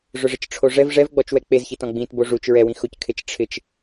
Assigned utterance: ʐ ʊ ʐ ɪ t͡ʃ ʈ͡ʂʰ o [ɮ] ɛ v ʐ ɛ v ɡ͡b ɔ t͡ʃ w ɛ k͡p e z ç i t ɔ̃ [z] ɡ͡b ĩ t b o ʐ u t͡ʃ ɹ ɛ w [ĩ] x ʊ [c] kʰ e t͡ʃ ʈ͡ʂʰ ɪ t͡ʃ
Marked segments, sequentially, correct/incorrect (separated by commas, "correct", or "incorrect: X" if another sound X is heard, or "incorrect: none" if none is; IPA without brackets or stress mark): incorrect: ʐ, incorrect: none, correct, correct